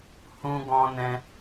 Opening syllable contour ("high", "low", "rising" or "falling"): high